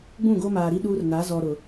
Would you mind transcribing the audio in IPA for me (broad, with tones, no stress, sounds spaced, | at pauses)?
ɡ͡b ũ˦˨ ɡ o˦ m aː˨ ɾ i˦ ɗ uː˦ r n a˨˦ z ɔ˨ ɾ ʊ˨